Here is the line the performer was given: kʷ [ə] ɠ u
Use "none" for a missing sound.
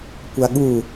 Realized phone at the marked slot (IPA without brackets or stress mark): a